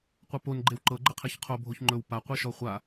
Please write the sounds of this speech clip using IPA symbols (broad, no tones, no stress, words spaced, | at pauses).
qʷɤpon ɡ͡ǃewǃɤ ɡ͡ǃɘqʰeçqʰo bʱoçŋ͡ǃɵw paqʷeʃɔ χʷa